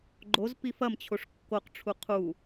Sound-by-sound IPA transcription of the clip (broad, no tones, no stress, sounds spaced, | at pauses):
ɡ͡ǃ o z p i f ɐ m t͡ɕʰ o ʂ kː o q ʈ͡ʂʰ u qʰ u